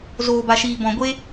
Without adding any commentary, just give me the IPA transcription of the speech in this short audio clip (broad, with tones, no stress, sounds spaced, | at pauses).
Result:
z oː˨ b a˨ ʃ iː˨ b ɔ̃˨ ɡʷ e˧